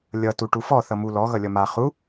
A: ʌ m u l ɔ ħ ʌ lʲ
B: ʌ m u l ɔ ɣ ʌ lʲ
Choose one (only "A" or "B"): B